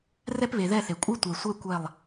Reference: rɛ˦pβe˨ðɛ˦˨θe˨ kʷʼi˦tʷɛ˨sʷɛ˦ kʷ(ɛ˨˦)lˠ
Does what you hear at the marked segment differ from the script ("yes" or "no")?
yes